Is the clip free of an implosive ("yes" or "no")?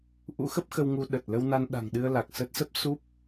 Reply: no